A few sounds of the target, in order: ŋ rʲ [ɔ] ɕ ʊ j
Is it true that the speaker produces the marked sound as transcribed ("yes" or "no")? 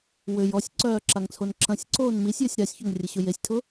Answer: no